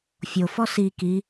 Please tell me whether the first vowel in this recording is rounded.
yes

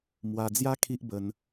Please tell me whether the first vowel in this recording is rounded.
no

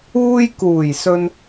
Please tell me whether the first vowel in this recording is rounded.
yes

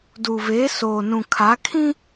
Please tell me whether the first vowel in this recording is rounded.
yes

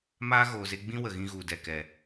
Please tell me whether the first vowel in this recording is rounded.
no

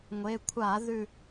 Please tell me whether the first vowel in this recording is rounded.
no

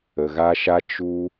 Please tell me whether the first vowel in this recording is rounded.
no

